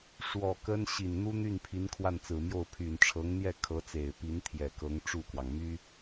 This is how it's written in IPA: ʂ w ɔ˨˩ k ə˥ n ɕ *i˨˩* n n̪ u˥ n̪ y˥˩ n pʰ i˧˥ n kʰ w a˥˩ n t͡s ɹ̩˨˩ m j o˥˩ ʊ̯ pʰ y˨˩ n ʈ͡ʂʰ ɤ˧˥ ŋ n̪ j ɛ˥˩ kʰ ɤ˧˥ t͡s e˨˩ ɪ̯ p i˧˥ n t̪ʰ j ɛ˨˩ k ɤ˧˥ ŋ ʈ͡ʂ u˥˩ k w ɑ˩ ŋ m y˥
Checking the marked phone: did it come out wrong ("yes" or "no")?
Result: no